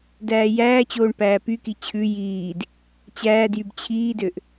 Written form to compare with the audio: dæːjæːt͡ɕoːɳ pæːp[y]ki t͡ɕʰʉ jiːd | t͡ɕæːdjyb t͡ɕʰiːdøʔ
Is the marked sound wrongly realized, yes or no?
no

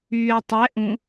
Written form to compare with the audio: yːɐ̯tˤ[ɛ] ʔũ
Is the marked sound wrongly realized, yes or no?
no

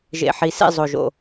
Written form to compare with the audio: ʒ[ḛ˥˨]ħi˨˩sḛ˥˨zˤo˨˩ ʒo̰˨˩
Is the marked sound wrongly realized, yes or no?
yes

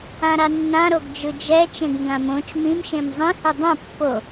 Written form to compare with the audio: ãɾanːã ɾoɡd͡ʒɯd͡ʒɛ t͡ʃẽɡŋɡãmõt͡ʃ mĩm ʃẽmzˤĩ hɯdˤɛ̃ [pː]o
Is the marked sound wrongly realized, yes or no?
no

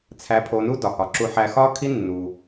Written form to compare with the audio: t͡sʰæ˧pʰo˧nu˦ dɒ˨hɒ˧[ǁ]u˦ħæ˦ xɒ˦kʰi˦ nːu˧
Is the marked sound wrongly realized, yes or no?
no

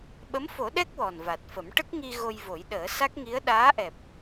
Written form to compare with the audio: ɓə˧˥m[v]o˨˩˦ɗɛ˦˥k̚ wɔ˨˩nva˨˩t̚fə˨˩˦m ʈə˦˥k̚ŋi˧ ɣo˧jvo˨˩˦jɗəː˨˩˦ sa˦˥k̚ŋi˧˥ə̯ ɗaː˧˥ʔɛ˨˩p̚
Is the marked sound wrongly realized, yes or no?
yes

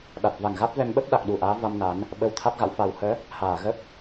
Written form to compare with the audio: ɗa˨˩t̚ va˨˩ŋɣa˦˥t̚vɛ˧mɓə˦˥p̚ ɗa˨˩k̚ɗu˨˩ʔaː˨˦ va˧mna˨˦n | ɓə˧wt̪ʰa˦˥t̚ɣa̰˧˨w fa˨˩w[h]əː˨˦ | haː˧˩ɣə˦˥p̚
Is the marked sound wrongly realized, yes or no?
no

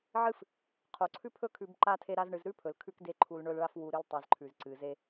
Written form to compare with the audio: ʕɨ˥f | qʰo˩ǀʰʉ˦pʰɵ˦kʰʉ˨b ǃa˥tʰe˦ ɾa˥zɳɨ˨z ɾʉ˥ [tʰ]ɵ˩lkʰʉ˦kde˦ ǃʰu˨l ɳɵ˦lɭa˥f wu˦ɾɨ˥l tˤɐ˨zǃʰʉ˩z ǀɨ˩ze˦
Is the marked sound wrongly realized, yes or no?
yes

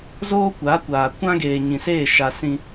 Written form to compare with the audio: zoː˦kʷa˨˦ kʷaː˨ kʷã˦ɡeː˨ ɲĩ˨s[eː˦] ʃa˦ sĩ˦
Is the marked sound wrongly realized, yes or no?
yes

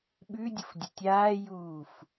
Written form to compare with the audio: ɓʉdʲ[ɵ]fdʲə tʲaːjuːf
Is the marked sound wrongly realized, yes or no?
yes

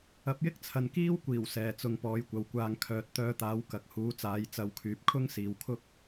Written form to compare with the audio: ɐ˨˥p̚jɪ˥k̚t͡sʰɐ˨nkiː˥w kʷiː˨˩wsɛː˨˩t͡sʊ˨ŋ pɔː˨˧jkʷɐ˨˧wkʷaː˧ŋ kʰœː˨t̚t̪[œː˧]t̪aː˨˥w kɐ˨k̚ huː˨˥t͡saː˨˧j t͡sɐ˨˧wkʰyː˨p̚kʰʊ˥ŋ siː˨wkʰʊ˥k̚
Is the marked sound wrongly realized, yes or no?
no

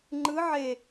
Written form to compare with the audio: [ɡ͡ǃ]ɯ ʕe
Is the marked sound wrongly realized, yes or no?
yes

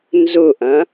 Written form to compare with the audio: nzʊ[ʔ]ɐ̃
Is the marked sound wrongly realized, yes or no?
no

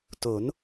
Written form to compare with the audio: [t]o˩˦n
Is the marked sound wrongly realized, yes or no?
no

